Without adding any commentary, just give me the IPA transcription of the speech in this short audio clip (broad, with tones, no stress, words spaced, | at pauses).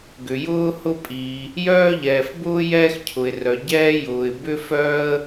ɡʏ˩jʊː˥hʊ˥pʼiː˩ | jœː˥ʎɛː˩fbʊː˥ jɛː˥xcʰʊ˩ɪ̯rœ˩ ɟɛː˥jʊː˩ɪ̯ bʏ˥fœː˥ə̯